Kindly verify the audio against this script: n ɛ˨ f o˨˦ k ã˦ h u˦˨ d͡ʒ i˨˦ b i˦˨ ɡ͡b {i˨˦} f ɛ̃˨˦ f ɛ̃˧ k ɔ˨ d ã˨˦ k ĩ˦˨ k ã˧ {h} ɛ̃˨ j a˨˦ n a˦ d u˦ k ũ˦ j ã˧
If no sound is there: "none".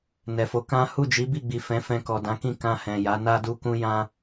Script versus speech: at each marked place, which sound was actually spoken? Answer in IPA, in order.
i˨, h

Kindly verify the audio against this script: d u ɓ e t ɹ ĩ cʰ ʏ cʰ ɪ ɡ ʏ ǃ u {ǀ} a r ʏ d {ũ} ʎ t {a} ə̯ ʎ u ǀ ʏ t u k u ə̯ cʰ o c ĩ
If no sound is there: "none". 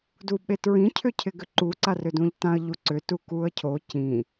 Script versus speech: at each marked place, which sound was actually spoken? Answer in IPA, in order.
ǀ, ũ, ã

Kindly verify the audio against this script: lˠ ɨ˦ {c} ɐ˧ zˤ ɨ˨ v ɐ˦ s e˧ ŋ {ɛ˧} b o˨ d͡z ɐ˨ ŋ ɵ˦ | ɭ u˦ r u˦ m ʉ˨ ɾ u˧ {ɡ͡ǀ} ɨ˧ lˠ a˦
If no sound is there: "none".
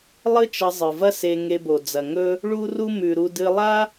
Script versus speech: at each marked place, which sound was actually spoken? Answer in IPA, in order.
t͡ʃ, e˧, d

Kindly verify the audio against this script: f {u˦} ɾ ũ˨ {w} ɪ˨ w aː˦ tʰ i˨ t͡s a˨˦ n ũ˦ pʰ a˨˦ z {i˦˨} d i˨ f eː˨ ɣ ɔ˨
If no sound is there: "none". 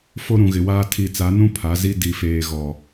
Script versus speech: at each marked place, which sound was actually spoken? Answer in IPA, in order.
o˦, ɣ, i˦

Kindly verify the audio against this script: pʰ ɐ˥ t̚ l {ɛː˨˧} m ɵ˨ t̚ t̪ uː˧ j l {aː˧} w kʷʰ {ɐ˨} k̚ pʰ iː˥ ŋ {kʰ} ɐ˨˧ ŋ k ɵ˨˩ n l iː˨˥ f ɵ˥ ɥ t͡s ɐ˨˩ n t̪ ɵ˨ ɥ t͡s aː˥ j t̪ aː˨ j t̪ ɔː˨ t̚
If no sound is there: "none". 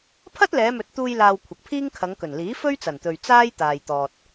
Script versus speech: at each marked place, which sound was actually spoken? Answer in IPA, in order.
ɛː˨˧, aː˧, ɐ˨, kʰ

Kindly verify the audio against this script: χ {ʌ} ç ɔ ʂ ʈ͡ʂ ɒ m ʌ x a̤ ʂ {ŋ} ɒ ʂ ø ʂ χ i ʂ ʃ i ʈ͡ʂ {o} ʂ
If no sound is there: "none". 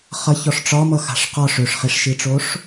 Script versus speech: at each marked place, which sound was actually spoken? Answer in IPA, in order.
ʌ, q, o

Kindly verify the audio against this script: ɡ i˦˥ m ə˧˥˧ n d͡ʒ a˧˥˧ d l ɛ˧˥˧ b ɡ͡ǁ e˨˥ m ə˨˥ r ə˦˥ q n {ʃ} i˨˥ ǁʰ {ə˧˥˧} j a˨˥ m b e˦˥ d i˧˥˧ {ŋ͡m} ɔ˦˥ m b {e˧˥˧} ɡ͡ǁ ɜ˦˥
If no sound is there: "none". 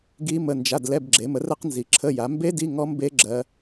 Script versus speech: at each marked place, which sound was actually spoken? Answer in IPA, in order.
z, ə˧˥˧, ŋ, e˦˥

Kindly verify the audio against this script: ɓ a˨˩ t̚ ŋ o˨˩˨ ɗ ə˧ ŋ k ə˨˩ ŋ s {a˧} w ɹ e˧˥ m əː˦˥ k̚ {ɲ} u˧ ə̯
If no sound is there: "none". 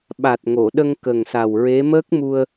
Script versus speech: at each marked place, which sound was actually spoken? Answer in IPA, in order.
a˨˩, m

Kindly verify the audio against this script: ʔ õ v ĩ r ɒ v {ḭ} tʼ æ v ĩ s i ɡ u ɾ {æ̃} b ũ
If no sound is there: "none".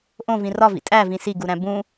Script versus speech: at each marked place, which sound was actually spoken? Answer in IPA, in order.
ḭ, æ̃

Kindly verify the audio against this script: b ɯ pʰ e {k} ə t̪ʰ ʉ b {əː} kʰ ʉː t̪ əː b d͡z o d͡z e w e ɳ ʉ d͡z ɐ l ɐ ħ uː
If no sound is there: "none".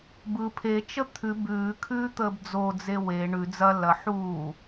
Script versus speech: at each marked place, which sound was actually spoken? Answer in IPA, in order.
t͡ʃ, ʉː

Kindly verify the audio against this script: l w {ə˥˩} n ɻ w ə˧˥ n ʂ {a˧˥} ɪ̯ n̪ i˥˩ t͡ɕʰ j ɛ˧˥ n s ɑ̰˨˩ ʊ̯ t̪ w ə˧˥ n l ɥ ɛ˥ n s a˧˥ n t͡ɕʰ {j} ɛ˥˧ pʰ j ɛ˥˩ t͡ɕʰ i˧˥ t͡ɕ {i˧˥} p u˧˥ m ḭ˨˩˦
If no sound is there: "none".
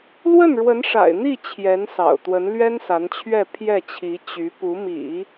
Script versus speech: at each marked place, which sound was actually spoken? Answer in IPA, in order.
ə˥˩, a̰˨˩, ɥ, y˧˥

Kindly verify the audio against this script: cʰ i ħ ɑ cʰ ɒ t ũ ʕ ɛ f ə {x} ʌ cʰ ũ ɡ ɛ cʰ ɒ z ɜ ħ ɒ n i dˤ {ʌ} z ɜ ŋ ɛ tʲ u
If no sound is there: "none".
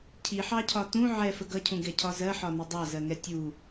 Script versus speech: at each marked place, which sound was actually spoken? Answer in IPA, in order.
ɡ, ɑ

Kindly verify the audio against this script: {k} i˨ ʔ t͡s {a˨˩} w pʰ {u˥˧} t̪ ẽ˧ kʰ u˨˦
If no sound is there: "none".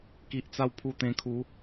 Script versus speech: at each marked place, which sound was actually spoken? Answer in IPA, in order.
k, a˧, u˧

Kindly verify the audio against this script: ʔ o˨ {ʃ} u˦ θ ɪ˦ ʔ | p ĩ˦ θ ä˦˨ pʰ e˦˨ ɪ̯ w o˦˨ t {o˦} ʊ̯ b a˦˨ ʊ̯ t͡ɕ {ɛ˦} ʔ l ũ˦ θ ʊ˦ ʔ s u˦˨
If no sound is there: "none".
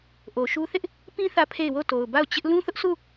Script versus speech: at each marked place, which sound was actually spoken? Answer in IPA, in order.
ʃ, o˨, ɪ˦

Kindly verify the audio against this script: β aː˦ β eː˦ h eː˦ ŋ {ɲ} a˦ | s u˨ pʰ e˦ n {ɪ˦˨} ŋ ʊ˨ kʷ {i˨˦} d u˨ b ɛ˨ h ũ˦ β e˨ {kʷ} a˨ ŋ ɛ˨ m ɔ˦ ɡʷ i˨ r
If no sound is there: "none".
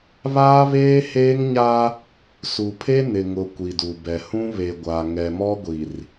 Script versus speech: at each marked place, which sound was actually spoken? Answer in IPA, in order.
ɲ, ɪ˨, i˨, ɡʷ

